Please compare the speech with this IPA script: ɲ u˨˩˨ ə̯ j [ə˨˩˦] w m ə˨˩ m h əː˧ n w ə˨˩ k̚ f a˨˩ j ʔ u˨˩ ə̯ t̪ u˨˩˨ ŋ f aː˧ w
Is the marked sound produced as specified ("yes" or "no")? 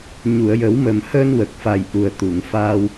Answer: yes